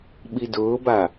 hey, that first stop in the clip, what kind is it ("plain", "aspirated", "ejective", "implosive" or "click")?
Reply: implosive